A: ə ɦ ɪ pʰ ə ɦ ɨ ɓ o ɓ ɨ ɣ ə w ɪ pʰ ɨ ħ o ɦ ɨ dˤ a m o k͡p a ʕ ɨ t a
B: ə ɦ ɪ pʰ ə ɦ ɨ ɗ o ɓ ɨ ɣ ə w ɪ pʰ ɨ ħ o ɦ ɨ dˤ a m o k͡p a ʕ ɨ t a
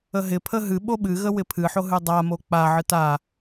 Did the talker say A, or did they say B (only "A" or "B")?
A